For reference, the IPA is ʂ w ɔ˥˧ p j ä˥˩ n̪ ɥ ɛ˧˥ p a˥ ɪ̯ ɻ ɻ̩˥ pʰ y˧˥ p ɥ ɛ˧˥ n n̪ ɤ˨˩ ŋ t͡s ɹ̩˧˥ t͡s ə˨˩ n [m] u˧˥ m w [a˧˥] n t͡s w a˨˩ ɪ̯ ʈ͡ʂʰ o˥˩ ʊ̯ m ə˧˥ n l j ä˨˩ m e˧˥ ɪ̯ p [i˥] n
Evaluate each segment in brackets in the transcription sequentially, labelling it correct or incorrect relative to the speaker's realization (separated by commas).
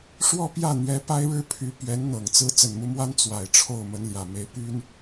correct, incorrect, incorrect